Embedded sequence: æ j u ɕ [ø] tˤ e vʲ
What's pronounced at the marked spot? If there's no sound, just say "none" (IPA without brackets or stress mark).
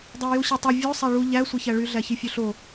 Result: e